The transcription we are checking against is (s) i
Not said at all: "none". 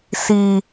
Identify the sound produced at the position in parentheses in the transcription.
s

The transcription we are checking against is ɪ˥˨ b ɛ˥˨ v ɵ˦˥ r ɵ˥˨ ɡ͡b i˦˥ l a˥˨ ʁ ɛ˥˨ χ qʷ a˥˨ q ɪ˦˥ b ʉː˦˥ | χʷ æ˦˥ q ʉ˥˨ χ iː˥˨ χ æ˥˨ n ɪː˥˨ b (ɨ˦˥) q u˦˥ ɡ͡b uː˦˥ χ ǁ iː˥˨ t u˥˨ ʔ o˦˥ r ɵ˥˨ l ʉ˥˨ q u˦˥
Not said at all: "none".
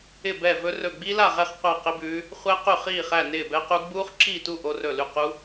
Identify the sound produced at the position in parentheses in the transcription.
ɛ˦˥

